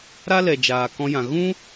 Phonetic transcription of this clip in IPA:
ɾ a˦ l ɛ˨ d͡ʒ aː˨ k ɔ̃˧ j ã˨ ɣ ũ˦

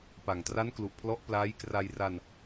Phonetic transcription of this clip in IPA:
p a˨˩ ŋ t r a˦˥ n k l u˨˩ ʔ pʰ l ɔ˦˥ ʔ p l aː˦˥ j k r a˧ j r a˧ n

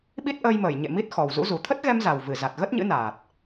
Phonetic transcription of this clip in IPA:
ɓ i˦˥ t̚ ʔ əː˧ j m əː˧˩ j ɲ ḛ˧˨ m i˦˥ t̚ x ɔ˨˩ w z ṵ˧˥ z u˨˩ t̪ʰ ə˦˥ t̚ ɣ ɛ˧ m z a˨˩ w v ɨ˧˩ z a˨˩ t̚ ɣ ə˦˥ t̚ ɲ ɨ̰˧˥ n aː˨˩ t̚

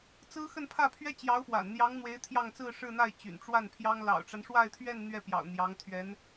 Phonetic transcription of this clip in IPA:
t͡s ɹ̩˥ x ə˥˧ n pʰ ä˥˩ pʰ ɥ ɛ˥ t͡ɕ j ɑ˧˥ ʊ̯ f w a̰˨˩ n n̪ j ɑ˧˥ ŋ n̪ w e˧˥ ɪ̯ t̪ʰ j ɑ˥˧ ŋ t͡s ɹ̩˥˧ ʂ ɻ̩˥˧ n̪ a˥˩ ɪ̯ t͡ɕ y̰˨˩ n ʈ͡ʂ w a˥˩ n pʰ j ɑ˥ ŋ l ɑ̰˨˩ ʊ̯ ʈ͡ʂ a˦ n ʂ w a˥˧ ɪ̯ t̪ʰ ɥ ɛ˥˧ n n̪ ɥ ɛ˥˩ p j ɑ̰˨˩ ʊ̯ n̪ j ɑ˧˥ ŋ t̪ʰ ɥ ɛ˧˥ n

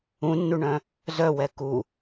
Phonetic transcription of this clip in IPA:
ũ nː u ɳ œ̃ | z œ w ɛ k u

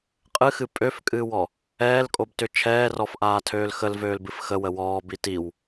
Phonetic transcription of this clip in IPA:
qʼ ɨ x ɨ pʼ ø f kʼ ɨː w ɔ | ɛː l kʼ o b t ʏ t͡ʃʰ ɛː r ɔ f ʔ aː tʰ øː l x ə l v øː l b ɨ f x ə w ə w ɔː b i t i w

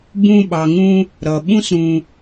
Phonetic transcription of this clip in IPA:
b ũ˧ ɓ ɑ˨ ŋ ũ˧ | ɾ ʌ˨ ɓ ũ˧ s ɾ ũ˨

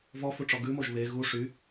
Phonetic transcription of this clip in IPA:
v ɔ f u ʈ͡ʂ ɔ ɡ ʉ m o ʒ β e ɣ u ʂ y

